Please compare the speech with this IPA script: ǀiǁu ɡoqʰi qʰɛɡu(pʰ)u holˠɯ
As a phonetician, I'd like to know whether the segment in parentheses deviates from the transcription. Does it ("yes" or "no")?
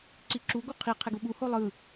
yes